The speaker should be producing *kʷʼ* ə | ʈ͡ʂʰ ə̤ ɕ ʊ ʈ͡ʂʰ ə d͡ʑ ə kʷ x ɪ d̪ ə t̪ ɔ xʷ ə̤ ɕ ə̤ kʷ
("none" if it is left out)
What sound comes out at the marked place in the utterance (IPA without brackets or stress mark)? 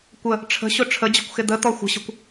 kʷ